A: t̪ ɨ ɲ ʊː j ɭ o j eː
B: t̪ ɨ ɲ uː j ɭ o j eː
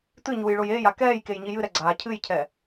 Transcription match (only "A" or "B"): B